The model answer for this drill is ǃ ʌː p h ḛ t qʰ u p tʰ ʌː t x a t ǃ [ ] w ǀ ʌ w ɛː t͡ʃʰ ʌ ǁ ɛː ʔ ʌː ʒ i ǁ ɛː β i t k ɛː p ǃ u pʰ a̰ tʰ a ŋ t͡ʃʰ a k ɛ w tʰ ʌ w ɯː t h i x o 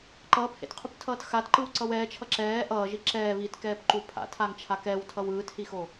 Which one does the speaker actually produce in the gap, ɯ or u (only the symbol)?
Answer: ɯ